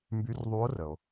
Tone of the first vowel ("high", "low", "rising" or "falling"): rising